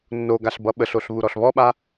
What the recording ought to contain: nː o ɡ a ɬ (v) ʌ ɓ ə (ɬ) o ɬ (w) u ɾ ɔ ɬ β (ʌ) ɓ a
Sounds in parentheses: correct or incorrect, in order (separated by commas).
incorrect, correct, incorrect, incorrect